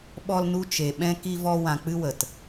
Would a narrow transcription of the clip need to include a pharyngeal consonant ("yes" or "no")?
no